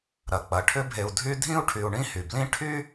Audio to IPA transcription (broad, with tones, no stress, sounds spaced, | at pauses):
ɾ ɐ˩ k͡p ɐ˩ ʈʰ ʏ˦ bʱ e˨ u̯ dʱ y˦ dʱ ĩ˥ u̯ ʈʰ y˨ u̯ ɳ ĩ˥ h y˩ b l ĩ˥ ʈʰ y˥